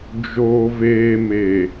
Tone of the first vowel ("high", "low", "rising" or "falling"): low